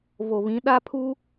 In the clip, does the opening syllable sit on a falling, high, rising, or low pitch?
low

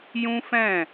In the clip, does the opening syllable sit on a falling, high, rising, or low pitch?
high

